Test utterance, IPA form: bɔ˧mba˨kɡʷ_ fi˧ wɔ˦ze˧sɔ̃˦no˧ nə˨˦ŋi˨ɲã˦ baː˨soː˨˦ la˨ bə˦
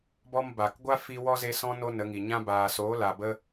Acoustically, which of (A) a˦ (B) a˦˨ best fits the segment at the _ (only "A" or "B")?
A